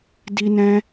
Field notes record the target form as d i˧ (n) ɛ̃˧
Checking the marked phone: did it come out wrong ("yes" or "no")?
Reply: no